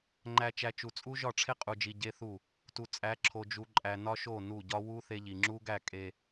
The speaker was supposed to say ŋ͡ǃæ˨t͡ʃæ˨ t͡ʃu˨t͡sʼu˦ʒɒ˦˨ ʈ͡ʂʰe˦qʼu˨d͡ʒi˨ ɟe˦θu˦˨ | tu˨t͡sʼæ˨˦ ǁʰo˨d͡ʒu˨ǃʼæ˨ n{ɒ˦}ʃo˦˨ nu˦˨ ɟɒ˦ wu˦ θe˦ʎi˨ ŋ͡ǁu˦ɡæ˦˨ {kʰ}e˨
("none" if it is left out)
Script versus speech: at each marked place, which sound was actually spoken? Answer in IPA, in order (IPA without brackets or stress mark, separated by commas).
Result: ɒ˦, kʼ